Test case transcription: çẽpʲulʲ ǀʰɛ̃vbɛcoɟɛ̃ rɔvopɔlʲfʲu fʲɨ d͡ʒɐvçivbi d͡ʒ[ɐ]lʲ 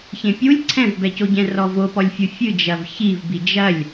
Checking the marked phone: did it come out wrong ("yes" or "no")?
no